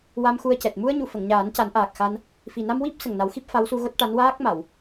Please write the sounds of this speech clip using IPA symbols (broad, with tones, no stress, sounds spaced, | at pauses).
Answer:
w a˧ m x u˧ ə̯ c ɛ˨˩ t̚ m u˧ ə̯ ɲ u˨˩˨ f ə˨˩˨ ŋ ɲ aː˨˩˦ n c a˨˩˦ n ʔ aː˨˩ k̚ x a˧ n | f i˨˩ n a˧ m w i˦˥ p̚ s ə˨˩ ŋ n a˨˩˦ w x i˦˥ p̚ f a˧˥ w s u˧ ɣ o˦˥ t̚ ʈ a˧˥ n w aː˦˥ k̚ m a˨˩˨ w